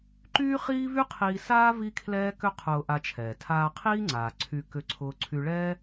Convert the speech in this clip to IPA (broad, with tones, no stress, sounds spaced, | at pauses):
ǃ yː˥ χ iː˥ v y˥ qʰ iː˧ s aː˥ v i˥ kʰ l ɛː˥ k ʏ˥ qʰ ʊː˧ ʔ a˧ t͡ʃʰ ɛː˩ tʰ aː˧ qʰ iː˥ ŋ͡ǀ aː˩ ǀʰ y˧ k ʏ˧ ǀʰ ʊː˧ ǀʰ y˧ ɭ ɛː˥